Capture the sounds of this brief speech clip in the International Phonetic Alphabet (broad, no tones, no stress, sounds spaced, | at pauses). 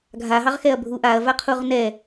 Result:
ɡʱ a ɦ ɑ ʁ x ɛ ɐ̯ bʱ u ʔ a ɐ̯ v a qʰ u ʁ n ɛ